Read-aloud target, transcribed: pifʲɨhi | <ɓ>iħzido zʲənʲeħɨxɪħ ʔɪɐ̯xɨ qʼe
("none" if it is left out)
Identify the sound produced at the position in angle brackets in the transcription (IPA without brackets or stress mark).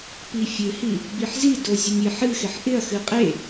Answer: b